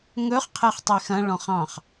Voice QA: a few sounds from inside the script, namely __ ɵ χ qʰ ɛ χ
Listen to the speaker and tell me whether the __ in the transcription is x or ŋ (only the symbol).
ŋ